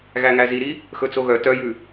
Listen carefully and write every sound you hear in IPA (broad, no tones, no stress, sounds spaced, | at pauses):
ɣ æ ŋ æ z i ɾ i | x ɵ t͡s o ɣ œ t œ j ʉ